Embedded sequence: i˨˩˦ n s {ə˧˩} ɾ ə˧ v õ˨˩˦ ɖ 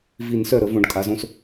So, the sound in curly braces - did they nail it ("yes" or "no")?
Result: no